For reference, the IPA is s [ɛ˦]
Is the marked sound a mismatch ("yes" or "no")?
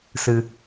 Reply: yes